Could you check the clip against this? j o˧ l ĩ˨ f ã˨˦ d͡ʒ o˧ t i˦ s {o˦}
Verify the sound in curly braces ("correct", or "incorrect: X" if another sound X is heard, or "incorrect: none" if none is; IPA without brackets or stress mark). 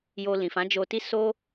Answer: correct